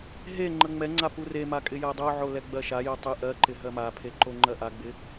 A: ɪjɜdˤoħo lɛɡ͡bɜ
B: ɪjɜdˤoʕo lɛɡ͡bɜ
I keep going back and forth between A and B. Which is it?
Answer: B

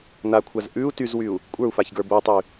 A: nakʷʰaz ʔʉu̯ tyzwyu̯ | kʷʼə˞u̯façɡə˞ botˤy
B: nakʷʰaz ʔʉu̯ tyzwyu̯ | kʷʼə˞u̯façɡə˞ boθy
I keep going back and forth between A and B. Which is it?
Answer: A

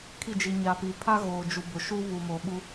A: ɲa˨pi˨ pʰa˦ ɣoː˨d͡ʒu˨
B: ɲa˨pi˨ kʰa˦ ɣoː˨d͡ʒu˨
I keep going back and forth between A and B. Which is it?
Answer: A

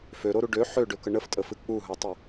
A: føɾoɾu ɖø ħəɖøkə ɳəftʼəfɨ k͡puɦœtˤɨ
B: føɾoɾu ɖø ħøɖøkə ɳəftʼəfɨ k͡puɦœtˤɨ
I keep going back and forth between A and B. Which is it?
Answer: B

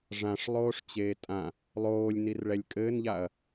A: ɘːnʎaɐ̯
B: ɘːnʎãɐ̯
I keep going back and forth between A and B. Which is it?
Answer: A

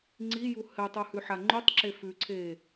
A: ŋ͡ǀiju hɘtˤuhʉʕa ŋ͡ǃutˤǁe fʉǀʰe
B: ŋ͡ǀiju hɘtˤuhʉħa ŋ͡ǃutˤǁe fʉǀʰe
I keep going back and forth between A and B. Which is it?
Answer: B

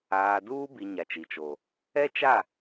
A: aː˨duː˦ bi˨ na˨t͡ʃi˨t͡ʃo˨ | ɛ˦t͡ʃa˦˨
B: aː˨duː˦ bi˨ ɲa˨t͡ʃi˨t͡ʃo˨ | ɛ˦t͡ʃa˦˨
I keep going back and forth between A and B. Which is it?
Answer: B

